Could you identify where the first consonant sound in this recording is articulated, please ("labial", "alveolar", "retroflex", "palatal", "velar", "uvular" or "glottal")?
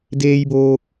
alveolar